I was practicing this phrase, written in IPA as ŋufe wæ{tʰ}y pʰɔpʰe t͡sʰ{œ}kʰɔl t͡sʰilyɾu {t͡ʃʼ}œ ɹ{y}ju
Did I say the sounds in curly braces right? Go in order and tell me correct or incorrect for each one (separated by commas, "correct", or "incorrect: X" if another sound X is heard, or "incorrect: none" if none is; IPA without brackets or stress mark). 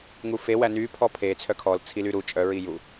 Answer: incorrect: n, correct, correct, incorrect: i